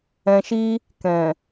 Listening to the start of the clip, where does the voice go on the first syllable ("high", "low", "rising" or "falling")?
low